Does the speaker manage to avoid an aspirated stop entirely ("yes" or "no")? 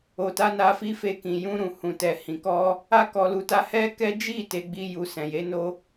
yes